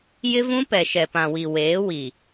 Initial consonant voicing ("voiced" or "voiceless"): voiced